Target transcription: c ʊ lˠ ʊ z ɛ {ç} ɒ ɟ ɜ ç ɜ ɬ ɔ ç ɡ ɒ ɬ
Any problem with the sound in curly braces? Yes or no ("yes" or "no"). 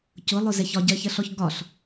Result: no